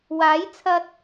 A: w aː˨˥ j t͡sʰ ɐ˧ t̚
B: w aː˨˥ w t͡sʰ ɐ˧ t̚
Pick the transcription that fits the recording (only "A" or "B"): A